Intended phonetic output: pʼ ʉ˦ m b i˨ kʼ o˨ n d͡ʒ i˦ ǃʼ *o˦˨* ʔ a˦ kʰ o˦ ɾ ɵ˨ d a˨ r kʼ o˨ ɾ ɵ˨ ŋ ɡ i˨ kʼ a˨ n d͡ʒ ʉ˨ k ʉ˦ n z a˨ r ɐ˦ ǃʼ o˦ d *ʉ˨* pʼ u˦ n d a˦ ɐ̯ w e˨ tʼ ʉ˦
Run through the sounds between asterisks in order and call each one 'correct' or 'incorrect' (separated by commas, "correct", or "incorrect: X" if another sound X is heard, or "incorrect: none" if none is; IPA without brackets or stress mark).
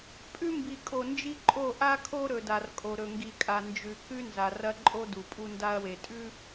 correct, incorrect: u˨